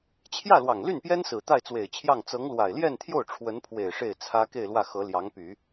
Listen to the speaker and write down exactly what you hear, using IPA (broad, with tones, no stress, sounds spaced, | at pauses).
t͡ɕʰ j ä˥˩ l w ɑ˨˩ ŋ l y˥˩ n p j ɛ˥ n s ɹ̩˨˩ t̪ a˥˩ ɪ̯ t͡s w e˨˩ ɪ̯ t͡ɕʰ j ɑ˥˩ ŋ t͡s ɤ˧˥ ŋ l w a˨˩ ɪ̯ l j ɛ˥˧ n t̪ʰ j o˥˩ ʊ̯ ʈ͡ʂʰ w ə˧˥ n pʰ w e˨˩ ɪ̯ ʂ e˥˩ ɪ̯ t͡sʰ ä˥ k e˥˧ ɪ̯ l w ä˥˩ x ɤ˧˥ l j ɑ˧˥ ŋ p y˨˩˦